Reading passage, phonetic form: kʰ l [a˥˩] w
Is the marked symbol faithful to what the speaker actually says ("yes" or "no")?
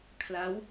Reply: no